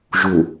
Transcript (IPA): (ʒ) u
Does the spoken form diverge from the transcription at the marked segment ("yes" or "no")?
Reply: no